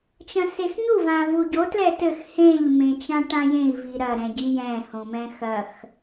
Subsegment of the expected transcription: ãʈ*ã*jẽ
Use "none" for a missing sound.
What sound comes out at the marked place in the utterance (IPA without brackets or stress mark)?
ã